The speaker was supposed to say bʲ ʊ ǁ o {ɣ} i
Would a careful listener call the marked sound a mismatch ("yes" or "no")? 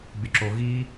no